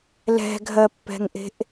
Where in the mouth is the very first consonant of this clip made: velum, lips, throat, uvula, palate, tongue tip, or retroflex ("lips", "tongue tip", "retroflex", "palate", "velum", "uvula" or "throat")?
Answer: tongue tip